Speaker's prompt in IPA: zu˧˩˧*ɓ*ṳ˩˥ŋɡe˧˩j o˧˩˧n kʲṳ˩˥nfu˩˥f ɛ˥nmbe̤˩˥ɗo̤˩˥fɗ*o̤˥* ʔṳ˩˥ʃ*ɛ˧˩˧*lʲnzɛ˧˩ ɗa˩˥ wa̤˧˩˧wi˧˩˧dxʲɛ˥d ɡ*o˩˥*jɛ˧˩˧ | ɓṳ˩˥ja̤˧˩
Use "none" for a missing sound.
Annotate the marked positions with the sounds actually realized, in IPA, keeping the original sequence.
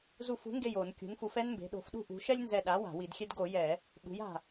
f, ṳ˥, ɛ˥, o˧˩˧

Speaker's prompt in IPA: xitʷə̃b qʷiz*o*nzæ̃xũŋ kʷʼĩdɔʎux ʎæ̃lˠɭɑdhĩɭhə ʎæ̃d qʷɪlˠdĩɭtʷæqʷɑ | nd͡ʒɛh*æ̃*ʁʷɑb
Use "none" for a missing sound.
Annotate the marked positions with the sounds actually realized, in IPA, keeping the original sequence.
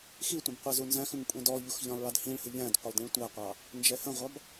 u, ə̃

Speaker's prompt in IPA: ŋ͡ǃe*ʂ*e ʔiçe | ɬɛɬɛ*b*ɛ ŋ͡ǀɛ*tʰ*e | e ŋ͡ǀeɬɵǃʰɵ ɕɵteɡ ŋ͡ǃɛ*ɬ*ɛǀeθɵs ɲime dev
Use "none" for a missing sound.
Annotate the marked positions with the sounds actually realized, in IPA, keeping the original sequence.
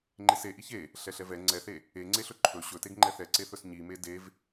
s, v, θ, θ

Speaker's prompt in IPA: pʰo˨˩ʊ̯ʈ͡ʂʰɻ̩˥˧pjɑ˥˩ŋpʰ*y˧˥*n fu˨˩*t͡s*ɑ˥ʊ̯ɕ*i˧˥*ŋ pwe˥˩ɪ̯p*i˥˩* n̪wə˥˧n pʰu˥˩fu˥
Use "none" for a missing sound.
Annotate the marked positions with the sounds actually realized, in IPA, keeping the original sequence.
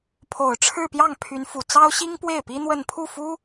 y˧˥, t͡s, i˥, i˥

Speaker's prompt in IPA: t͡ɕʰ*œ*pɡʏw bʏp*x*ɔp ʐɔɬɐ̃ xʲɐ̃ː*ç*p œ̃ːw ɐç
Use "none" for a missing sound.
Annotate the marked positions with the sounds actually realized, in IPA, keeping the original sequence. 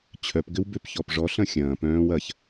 œ, ç, none

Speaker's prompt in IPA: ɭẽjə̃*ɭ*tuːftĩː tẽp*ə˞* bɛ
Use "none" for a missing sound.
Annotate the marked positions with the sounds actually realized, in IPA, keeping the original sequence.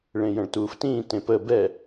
ɭ, ə

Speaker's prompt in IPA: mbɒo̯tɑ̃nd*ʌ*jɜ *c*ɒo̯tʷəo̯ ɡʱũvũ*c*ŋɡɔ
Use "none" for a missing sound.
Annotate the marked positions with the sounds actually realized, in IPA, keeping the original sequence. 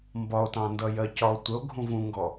ʌ, c, none

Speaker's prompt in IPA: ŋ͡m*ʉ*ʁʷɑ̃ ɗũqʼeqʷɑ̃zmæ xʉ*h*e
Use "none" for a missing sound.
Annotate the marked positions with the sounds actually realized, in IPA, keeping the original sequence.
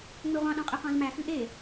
ø, ʔ

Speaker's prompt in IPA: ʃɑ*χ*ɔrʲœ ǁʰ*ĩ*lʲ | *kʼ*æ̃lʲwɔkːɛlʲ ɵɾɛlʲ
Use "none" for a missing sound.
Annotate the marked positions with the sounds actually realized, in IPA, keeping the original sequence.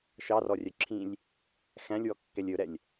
r, ĩ, x

